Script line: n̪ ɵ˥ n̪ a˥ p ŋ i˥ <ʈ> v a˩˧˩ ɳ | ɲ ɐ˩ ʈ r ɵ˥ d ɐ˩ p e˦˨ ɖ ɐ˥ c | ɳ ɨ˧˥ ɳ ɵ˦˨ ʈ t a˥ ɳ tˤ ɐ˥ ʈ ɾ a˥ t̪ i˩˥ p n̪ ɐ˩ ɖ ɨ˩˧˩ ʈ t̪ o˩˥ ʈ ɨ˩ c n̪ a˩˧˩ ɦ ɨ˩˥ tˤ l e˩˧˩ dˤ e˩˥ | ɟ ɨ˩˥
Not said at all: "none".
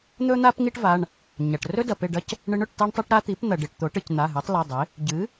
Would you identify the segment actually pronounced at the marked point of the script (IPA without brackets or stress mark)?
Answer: ʈ